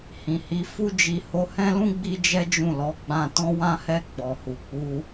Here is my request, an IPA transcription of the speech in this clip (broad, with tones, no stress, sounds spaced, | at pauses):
h ĩ˨ h i˨˦ f u˦ d͡ʒ i˧ h o˧ h ɛ̃˦ l ũ˦ ɡ͡b i˦ d͡ʒ ɛ˦ d͡ʒ ũ˦˨ l ɔ˨˦ ɡ͡b ã˧ t ɔ̃˦ w ã˦ h ɛ˦˨ ɡ͡b ɔ˨ h u˨ k͡p u˧